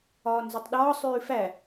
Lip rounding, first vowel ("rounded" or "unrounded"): rounded